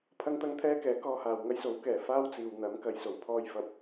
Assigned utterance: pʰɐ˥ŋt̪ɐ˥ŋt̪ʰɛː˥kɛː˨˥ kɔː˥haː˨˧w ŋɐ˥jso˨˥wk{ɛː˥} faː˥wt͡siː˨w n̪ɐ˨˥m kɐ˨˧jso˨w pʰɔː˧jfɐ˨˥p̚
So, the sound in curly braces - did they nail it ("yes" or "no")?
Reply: no